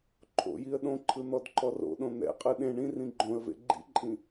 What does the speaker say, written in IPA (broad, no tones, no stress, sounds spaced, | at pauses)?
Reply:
ǃʰ o̰ j i ə̯ ɗ õ ǃʰ ɯ n̪ ɔ d ǃ ɔ r o̰ ɗ õ n̪ ɛ̰ qʼ ɯ ɗ ẽ ɳ ĩ r ĩ ɡ͡ǃ õ ə̯ v ḛ ɡ͡ǃ ḭ ǃʼ ĩ